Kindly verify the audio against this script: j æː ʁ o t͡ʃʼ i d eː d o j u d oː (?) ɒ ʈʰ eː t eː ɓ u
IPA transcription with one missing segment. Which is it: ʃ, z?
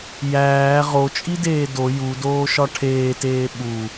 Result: ʃ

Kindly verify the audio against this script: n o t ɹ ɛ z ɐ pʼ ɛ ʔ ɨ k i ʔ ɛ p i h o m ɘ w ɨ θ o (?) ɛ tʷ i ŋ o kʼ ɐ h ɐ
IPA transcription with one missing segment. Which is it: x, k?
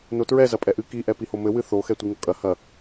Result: x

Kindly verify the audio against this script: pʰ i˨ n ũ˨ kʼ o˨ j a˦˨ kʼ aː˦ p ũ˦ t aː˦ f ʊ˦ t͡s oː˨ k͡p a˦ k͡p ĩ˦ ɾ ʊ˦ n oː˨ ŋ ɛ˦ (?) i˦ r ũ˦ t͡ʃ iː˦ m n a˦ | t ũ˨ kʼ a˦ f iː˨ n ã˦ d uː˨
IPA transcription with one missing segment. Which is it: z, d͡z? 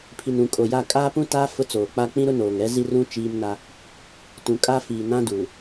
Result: z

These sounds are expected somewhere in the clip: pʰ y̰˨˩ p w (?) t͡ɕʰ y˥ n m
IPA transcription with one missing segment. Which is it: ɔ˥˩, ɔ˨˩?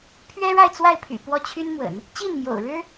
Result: ɔ˥˩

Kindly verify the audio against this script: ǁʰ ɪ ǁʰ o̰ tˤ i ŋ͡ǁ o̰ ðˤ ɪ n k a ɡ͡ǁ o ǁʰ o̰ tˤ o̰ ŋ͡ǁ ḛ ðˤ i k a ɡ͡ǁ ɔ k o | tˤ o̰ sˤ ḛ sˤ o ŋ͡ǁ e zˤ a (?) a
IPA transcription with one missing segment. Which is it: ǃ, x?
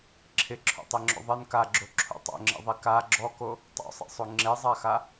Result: x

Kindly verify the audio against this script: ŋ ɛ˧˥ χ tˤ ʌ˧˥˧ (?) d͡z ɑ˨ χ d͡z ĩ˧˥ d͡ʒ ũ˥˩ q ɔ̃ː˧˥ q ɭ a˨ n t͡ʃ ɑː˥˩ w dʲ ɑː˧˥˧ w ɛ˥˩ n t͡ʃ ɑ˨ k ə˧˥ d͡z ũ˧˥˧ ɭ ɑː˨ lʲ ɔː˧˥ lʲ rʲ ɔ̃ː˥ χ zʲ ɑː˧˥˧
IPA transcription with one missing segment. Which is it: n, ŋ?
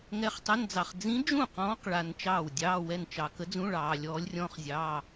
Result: n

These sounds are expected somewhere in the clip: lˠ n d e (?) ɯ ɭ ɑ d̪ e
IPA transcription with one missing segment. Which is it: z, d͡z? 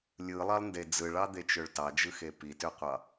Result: d͡z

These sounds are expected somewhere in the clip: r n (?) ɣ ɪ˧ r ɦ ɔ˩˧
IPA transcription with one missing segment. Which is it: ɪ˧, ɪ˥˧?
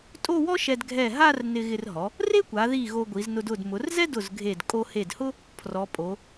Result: ɪ˧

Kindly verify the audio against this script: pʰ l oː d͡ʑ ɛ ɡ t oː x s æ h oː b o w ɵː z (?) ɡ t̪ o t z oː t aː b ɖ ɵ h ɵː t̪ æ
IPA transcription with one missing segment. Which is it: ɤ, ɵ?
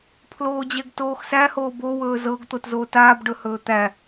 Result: ɤ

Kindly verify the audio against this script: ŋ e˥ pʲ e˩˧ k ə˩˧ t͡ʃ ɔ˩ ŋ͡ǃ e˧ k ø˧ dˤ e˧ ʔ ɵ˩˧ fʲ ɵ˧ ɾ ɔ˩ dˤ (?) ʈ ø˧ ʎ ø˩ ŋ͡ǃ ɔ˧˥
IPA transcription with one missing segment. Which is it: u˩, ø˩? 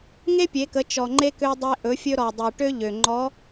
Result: ø˩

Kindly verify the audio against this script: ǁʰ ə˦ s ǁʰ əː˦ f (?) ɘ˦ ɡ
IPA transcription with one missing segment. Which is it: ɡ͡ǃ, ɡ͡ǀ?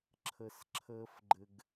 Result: ɡ͡ǃ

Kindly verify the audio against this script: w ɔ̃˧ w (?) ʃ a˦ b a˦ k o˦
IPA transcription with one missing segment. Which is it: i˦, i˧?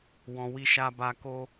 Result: i˦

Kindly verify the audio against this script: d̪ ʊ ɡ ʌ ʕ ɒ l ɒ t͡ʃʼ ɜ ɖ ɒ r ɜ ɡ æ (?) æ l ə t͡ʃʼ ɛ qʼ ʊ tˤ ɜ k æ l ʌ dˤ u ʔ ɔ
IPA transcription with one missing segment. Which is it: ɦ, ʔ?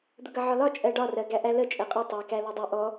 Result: ʔ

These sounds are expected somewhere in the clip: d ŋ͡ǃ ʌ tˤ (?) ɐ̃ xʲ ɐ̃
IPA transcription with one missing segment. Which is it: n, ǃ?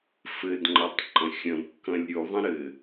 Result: ǃ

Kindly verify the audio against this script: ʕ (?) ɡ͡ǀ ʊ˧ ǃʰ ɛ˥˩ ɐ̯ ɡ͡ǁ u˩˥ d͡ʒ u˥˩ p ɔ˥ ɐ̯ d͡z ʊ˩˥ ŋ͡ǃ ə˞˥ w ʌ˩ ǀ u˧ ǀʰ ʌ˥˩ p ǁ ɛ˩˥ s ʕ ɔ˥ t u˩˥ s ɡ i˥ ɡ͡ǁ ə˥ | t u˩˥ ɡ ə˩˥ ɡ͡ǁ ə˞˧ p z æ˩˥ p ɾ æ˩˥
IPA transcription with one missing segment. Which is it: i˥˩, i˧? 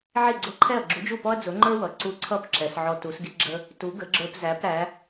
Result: i˥˩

